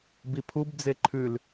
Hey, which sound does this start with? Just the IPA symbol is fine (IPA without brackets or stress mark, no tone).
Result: b